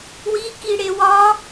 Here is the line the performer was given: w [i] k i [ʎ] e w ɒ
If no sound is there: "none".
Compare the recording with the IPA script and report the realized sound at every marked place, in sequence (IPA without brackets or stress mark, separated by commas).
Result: i, ɽ